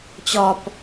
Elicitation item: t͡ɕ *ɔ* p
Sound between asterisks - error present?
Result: no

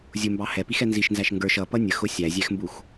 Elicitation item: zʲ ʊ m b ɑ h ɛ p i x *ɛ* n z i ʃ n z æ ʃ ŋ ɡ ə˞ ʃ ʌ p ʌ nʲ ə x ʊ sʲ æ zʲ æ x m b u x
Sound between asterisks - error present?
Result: no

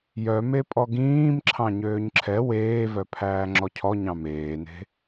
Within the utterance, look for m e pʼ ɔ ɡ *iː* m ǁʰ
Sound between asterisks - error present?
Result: yes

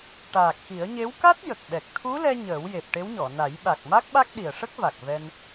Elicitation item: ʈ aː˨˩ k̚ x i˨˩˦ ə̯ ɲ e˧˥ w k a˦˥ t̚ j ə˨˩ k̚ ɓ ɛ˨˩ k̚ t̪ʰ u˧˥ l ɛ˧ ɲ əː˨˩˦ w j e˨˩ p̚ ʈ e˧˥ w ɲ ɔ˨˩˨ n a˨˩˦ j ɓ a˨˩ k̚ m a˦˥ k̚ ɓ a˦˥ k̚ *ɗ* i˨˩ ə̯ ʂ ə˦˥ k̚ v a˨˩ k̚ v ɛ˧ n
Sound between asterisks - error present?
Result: no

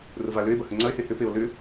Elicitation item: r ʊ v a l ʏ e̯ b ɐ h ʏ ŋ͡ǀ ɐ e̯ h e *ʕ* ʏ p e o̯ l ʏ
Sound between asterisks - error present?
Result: yes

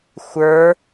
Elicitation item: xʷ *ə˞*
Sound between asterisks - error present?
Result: no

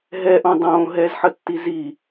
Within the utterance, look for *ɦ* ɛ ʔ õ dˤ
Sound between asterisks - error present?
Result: no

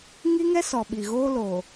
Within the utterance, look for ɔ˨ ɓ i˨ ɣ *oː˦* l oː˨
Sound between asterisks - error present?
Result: no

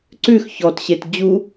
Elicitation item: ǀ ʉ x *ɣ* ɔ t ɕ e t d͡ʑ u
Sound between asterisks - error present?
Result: yes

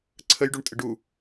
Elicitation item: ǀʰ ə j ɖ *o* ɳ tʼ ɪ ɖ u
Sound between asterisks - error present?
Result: yes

